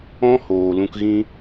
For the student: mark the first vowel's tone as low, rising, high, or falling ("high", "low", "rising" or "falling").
high